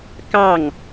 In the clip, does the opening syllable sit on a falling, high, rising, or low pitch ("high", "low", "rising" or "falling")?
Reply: falling